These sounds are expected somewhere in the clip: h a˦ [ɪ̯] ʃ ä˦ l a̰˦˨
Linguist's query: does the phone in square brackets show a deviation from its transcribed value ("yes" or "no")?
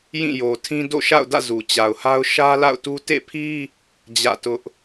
yes